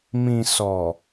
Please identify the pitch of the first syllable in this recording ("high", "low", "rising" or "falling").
low